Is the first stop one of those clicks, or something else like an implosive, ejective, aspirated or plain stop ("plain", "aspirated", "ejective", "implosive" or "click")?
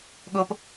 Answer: implosive